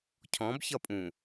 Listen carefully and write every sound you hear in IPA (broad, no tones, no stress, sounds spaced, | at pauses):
cʰ ɔ̃ b ç ʌ pʼ ũ